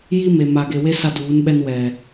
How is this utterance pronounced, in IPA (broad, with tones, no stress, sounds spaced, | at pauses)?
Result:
j i˦ m e˨ m a˨ ɡ e˨ w e˦ s a˦ d uː˨˦ n ɓ ɛ˦ n w ɛ˨